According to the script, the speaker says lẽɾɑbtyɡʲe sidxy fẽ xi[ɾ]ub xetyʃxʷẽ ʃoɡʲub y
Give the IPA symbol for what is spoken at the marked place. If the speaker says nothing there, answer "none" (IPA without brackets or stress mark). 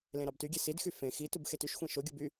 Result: t